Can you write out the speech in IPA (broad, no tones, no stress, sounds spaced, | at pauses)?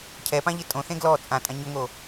cʰ ɛ p ã ʎ ɪ tʼ õ θ ẽ ɡ l ɔ t͡sʼ ã tʼ ã ɲ ʊ ŋ o